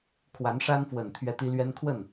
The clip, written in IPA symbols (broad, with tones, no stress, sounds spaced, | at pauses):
kʰ w a˧˥ n ʂ a˥ n f w ə˨˩ n t̪ʰ ɥ ɛ˥˩ t̪ i˥ l ɥ ɛ˥ n kʰ w ə˥˩ n